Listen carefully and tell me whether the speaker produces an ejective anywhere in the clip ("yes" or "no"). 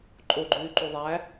yes